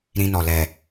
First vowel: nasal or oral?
nasal